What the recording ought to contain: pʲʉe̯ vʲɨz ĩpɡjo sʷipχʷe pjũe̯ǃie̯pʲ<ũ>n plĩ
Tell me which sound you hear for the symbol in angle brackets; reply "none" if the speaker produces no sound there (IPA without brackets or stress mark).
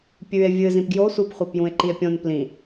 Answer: õ